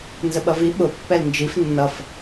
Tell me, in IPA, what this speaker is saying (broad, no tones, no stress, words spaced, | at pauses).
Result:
nzəɓʌvi ɓʊ pːɛlnd͡ʒif nːʌf